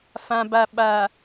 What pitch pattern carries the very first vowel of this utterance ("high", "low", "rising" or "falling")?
low